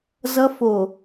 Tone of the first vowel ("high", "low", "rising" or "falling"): high